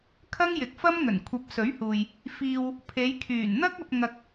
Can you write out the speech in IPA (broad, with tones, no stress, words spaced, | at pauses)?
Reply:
kʰɐ˥ŋjɪ˨˥k̚fɐ˥mŋɵ˨˩n kʷʰɐ˨˥p̚sɵ˨˥ɥhuː˨j | fiː˧w | pʰe˨˧j kʰyː˨˩nn̪ɐ˥k̚ɐ˧p̚ ŋɐ˧k̚